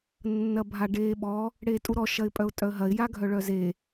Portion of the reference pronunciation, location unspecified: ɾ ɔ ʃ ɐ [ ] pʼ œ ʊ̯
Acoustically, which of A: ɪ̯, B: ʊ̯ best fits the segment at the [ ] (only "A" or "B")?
A